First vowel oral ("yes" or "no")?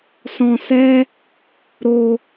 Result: no